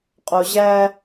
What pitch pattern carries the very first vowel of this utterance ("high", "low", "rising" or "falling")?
low